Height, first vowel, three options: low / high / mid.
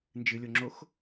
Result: high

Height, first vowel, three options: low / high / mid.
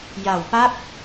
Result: low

